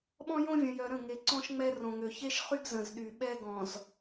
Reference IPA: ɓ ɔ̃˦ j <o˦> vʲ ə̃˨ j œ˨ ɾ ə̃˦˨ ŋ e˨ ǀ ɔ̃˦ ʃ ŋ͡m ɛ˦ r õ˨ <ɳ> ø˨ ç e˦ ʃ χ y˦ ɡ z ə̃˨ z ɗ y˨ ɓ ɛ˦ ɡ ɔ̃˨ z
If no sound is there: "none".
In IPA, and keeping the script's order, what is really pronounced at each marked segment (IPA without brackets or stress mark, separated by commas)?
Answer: õ˦, ŋ